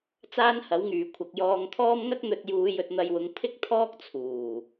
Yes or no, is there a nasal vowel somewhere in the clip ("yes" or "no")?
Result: no